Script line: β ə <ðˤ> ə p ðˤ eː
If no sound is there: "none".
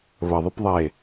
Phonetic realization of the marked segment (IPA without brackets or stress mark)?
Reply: ðˤ